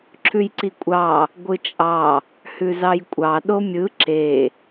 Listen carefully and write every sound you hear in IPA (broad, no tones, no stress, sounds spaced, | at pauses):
ǁʰ ʉ j ǀ i kʷʼ ɑ | ɡʷ ɯ t͡ʃʼ ɑ | h ʉ z ɑ j kʷʼ ɑ ɗ o mʲ ɯ ǁ e